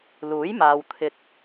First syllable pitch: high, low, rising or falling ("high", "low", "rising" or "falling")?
rising